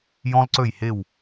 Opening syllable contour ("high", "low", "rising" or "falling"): high